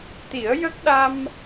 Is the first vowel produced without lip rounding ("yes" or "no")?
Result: yes